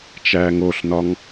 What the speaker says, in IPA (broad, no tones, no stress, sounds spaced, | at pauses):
t͡ʃ æː ŋ o ɬ n ɒ ŋ